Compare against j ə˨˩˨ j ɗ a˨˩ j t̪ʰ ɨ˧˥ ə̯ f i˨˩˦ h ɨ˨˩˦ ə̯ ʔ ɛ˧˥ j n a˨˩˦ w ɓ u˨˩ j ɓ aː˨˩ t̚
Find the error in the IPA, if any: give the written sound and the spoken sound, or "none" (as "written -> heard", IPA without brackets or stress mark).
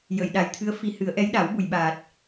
n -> ɗ